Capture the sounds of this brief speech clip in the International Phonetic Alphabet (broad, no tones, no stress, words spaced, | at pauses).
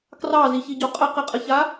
krɑziçiɟo qʼəqɘqʼəça